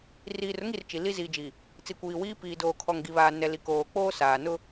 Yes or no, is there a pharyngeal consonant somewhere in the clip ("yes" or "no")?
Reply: no